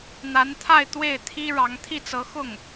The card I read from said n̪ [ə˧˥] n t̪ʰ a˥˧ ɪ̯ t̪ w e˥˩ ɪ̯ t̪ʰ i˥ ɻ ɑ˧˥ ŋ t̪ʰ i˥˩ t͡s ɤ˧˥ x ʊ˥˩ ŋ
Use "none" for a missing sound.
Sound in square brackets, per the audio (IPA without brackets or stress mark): a˧˥